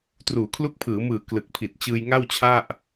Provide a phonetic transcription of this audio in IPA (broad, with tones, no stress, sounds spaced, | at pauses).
t r uː˩˦ kʰ l u˦˥ k̚ pʰ ɯː˩˦ m ɯː˨˩ k l ɯ˨˩ k̚ pʰ i˨˩ t̚ t͡ɕ ɯː˧ j ŋ a˥˩ w t͡ɕʰ a˥˩ ʔ